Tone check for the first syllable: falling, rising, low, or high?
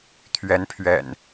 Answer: rising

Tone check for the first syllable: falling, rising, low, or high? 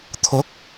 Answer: rising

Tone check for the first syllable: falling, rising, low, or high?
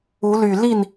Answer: rising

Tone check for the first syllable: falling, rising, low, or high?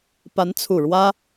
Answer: rising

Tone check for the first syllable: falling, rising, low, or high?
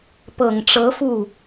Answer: low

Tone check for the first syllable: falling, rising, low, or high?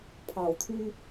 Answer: low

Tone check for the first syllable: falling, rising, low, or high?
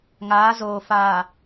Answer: rising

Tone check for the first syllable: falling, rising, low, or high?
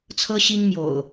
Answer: high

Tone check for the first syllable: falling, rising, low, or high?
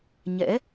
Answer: rising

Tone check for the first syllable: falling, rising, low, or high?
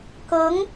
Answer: rising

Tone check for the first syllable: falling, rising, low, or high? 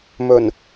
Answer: low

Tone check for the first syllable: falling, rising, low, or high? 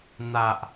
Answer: low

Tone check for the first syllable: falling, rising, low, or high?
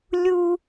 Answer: high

